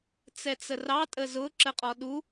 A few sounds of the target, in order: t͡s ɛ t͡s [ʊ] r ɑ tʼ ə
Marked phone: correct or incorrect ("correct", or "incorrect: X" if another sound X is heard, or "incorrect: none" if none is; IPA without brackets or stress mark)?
incorrect: ə